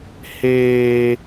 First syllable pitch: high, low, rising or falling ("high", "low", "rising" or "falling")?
high